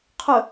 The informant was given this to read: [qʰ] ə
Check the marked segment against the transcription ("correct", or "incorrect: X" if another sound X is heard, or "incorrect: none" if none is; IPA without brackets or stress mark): correct